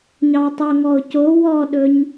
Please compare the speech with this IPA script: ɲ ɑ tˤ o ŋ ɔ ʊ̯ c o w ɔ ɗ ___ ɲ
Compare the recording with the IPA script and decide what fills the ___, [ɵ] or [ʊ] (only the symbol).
ɵ